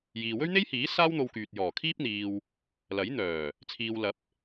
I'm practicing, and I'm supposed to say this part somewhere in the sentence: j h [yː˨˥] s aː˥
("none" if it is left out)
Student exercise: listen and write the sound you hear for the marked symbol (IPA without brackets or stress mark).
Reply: iː˨˥